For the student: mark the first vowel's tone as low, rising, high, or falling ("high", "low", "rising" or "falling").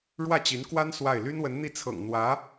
falling